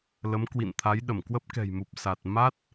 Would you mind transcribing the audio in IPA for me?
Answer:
l ə˨˦ m k w ḭ˧˨ n t̪ʰ a˨˦ j ɗ ə˧˩ m k w ə˦˥ p̚ k ɛ̤˨˩ j m u˨˩ p̚ s a˨˩ t̚ m a˦˥ t̚

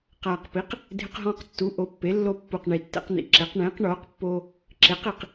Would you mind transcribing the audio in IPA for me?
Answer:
q aː˨˩ q p i˩˥ q | dʱ ɪ˧ q ɦ ɔ̃ː˧ q tː u˩˥ ʔ o˩˥ pː e˩˥ lː o˧ pː u˨˩ q ɳ i˨˩ tː ɛ̰˧ q n̪ ḭ˨˩ ǁ e˩˥ q ɳ ẽː˩˥ q ɳ oː˩˥ q pː oː˧ | ǁ e˩˥ q i˨˩ q

